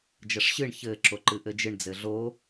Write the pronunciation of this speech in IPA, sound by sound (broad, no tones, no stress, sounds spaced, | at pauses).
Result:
d͡ʒ ɐ ʂ ɕ ɨ ɳ ç ɘ ǁ o ǃ ɨ ʔ ɘ d͡ʒ ɨ ɳ d͡z ɘ ɮ o